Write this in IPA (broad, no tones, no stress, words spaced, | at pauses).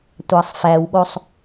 tʷɑsˤfæwɠosˤ